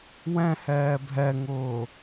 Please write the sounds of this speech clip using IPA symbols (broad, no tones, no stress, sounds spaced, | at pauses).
w ɛ̃ h ɛː bʱ ɛ ŋ ʊː